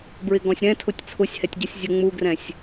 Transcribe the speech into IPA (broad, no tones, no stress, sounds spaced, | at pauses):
b ɹ ɪ ɡ ɔ̃ sʲ ɾ ɛ̃ tʰ ʊ tʲ t͡sʰ ʊ sʲ h ɛ tʲ ɟ u sʲ zʲ ʊ ŋ͡m u ɡ r ɛ̃ sʲ